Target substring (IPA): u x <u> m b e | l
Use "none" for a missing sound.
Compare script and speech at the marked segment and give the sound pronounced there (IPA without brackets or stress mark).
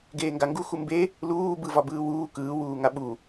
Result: u